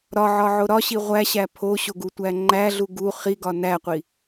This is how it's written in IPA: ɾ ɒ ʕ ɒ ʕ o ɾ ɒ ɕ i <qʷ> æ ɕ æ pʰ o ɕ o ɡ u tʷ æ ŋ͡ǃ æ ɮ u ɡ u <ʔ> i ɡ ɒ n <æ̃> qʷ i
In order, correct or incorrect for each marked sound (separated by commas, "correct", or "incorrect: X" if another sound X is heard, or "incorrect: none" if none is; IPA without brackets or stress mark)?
incorrect: ʁʷ, incorrect: χ, incorrect: æ